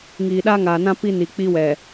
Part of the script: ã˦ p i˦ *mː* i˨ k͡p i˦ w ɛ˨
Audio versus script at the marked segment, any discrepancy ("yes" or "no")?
yes